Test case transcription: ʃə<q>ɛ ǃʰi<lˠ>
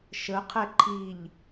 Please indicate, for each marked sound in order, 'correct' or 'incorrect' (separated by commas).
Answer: incorrect, incorrect